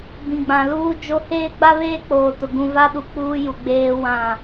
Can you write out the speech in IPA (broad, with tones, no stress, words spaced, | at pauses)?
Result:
bĩ˨ɡ͡bã˨luː˦ d͡ʒo˦ heː˦ɡ͡ba˦βeː˦ k͡poː˨tʊ˨ ɡũ˨ va˦ɗu˨ k͡puː˦ju˨ ɡ͡beː˦wã˦˨